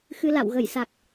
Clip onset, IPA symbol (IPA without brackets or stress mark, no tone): x